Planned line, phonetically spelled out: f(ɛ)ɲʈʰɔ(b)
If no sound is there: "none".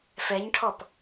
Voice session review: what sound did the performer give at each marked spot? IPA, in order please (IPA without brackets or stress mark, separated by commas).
ɛ, p